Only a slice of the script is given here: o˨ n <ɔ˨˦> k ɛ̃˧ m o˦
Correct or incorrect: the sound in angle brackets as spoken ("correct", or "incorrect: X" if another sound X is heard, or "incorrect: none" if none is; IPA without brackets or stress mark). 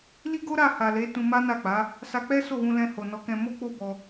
correct